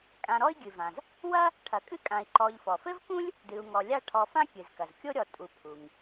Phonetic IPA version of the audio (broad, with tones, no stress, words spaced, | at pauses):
kʼã˨ɾɔ˦i̯ɡʲɨ˩vã˩z | wɐ˥ | ʈʰɐ˨kʼɨ˥kʼã˨i̯ ǃɔ˨ʎfɔ˩fɘ˥vkũ˥lʲ | dɨ˨u̯ŋɔ˨ lʲa˦ ʈʰɔ˨fã˥ kʲɨ˩zkɐ˩zkʲo˥ɾʲɔ˨ tʼu˨ pʰu˩ŋ